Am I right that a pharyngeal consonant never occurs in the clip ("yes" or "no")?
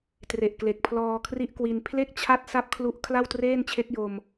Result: yes